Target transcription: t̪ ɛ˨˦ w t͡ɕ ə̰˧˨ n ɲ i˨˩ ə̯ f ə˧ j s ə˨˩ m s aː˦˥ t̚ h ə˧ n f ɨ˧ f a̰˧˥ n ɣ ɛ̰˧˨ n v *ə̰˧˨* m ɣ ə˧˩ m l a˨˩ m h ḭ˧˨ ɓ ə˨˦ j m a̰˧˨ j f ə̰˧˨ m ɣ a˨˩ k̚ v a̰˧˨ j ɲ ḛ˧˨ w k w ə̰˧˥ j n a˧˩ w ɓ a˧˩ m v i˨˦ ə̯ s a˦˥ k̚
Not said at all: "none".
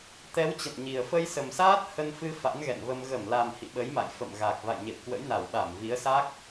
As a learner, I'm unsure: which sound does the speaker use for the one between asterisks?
ə˧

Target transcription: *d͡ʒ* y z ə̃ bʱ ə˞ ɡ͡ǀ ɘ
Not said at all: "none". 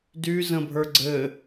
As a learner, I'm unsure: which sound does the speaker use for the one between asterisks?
d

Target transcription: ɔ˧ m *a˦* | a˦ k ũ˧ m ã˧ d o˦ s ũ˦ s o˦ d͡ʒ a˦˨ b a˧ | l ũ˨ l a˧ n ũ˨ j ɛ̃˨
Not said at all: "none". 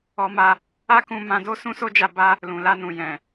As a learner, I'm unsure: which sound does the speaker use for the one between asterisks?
a˧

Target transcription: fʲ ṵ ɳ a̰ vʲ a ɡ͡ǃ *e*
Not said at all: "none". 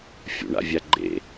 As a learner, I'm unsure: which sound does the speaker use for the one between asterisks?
ḛ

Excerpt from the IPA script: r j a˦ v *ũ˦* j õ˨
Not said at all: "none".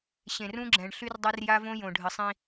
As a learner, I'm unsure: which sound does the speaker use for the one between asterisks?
õ˦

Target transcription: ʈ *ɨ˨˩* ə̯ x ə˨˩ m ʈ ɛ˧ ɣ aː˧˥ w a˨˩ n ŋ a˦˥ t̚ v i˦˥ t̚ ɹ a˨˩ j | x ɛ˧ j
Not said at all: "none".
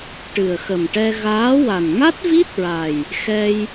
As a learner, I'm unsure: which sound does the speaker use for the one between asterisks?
ɨ˨˩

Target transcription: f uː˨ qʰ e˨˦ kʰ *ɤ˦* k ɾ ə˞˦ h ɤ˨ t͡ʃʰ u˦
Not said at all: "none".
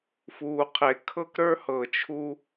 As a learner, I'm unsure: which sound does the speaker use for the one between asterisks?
ɤ˦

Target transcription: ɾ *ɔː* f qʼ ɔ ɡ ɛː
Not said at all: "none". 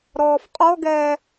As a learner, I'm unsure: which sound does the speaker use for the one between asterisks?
ɔː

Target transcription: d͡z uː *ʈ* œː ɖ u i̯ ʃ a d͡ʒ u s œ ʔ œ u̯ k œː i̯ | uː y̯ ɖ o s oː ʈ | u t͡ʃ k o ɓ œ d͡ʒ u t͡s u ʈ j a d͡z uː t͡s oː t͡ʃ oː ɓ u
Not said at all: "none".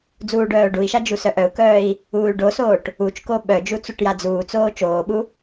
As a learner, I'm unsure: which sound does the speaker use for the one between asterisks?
ɖ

